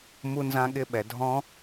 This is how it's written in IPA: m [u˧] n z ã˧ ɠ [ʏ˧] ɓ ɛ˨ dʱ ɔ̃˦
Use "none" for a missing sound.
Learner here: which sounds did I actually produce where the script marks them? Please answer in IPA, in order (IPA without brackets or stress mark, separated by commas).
u˧, ɪ˧